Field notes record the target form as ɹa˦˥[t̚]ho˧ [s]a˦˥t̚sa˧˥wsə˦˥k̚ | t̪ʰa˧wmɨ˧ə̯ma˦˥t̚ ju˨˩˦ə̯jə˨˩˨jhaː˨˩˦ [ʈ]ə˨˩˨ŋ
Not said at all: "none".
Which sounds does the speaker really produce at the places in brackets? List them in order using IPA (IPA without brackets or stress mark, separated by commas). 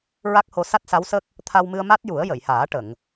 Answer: k̚, s, ʈ